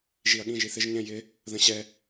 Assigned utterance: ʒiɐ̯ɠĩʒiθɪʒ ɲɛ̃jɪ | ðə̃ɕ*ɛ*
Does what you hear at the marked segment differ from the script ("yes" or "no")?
no